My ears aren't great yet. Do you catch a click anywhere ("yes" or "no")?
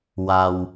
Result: no